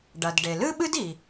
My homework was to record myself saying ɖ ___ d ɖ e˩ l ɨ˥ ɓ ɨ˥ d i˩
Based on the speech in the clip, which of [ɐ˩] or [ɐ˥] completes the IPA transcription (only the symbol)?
ɐ˩